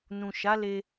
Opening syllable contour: low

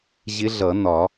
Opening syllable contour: rising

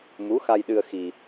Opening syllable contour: rising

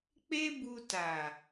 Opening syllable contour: high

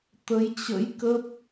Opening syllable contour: rising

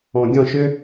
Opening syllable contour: low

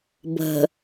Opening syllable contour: low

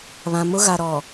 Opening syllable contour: low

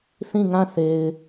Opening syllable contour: falling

